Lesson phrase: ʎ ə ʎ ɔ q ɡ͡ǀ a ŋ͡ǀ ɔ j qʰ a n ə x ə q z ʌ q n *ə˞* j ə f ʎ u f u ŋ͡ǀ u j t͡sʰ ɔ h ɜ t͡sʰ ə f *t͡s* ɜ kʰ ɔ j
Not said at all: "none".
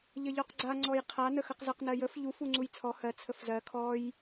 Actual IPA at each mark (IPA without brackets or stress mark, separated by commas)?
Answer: ɜ, z